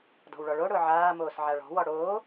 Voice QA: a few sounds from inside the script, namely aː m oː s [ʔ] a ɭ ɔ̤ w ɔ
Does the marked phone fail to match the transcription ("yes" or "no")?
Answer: yes